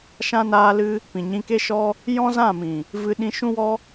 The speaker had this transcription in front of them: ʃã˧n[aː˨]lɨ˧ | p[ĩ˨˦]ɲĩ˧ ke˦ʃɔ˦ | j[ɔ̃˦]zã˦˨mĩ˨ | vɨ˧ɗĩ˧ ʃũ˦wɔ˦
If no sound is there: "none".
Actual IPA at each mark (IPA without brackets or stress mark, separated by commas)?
aː˧, ĩ˨, ɔ̃˦